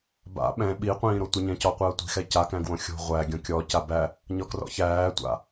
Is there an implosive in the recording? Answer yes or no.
yes